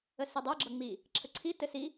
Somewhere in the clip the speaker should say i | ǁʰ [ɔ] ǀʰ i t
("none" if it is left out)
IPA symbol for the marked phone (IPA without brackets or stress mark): ə